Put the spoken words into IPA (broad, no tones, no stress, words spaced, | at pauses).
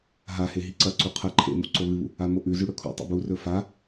ɦahe ɦiǀɐǀu qʰɐ ǃʰḛmṵ ǀoβɨβṵ | amoʔʉzʉ ɽɵkʰṵtˤḛ burɵ fa